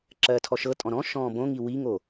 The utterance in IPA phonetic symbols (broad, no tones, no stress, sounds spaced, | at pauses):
ǁ ɜː tʰ ɔ ʃ ɤ tʼ ɔ̃ ɾ ɔ̃ ʃ ɔ̃ː b õ ŋ i w i ŋ o